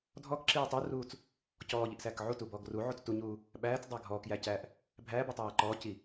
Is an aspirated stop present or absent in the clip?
absent